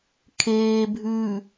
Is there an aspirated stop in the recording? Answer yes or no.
yes